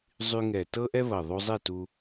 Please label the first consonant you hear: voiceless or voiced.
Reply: voiced